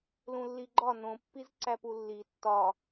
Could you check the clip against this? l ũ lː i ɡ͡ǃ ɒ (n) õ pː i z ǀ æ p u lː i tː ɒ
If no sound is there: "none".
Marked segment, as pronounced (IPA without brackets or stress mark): n